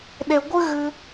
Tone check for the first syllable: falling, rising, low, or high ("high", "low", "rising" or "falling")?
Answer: low